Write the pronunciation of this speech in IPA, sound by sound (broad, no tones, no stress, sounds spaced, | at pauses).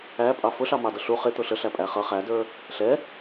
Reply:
æ pʼ ɑ f ʊ ɬ ɑ m ɑ d ʌ ɬ u χ ɪ t̪ ʊ ɬ ə ɬ æ pʼ æ χ ʌ χ æ d ə˞ | ɬ ɛ